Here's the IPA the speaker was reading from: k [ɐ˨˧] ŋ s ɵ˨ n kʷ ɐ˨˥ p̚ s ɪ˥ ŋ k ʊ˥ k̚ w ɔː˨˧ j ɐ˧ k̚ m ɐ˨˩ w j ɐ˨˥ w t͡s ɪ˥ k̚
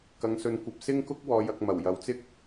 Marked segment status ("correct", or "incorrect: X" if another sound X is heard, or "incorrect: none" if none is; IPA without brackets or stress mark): correct